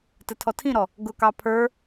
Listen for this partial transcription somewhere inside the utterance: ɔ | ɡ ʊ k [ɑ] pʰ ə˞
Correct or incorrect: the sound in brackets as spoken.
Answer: correct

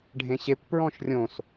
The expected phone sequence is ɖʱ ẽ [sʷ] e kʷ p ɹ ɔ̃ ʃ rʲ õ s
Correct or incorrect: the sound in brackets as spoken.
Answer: incorrect: ɕ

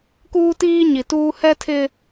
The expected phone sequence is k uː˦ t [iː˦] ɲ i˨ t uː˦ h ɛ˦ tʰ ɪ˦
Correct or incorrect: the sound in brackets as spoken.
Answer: correct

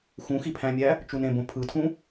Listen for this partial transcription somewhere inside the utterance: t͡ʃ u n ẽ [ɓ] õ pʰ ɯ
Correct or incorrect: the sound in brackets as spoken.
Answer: incorrect: b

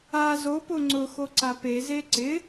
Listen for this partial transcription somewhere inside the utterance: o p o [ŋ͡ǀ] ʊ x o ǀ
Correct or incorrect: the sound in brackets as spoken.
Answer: correct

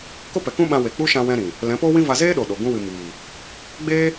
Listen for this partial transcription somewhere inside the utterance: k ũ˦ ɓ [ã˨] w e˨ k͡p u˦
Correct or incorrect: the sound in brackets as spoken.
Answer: incorrect: ã˧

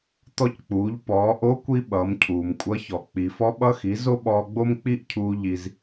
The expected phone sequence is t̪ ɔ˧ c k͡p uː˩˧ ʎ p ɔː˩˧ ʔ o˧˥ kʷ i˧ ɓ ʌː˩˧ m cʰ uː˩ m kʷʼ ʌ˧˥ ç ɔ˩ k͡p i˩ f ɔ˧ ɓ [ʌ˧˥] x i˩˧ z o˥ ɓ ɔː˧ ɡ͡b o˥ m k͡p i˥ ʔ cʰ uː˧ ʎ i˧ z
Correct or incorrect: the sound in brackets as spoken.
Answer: incorrect: ʌ˧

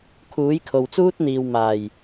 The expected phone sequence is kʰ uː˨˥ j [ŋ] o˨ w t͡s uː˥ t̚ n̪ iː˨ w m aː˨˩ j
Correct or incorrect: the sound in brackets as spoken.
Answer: incorrect: kʰ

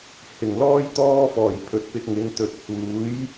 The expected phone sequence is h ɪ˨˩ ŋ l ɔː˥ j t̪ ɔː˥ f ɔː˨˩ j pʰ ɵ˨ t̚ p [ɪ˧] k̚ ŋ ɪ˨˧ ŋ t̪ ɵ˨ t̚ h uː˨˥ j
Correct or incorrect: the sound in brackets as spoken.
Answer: correct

